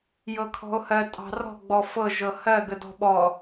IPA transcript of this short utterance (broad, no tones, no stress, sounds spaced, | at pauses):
j ɤ kʰ ɔ̤ o̯ h ɜ tʼ ɑ̤ r ɔ̤ ɡ͡b ɔ f ɤ ʒ ɤ h ɜ ɡ ə d ɔ̤ ɓ ɔ